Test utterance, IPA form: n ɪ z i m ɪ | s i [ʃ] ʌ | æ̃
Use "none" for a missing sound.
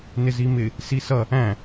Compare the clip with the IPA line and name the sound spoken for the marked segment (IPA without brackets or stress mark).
s